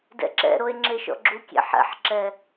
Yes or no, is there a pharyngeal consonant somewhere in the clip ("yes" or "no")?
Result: yes